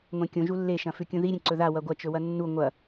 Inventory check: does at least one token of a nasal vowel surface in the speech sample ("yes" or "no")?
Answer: yes